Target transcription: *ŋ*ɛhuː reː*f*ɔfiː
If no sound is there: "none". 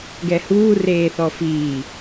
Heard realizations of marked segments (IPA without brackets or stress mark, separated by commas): ɡ, θ